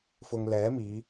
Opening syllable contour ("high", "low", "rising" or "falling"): low